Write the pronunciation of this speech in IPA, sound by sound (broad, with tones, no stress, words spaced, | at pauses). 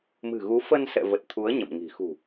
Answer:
mɨ̤˨˩ɣu˨˦ fə˧nsɛ̰˧˨və˨˩t̚ t̪ʰu˨˦ə̯ ɲə̰˧˨mŋi̤˨˩ xṳ˨˩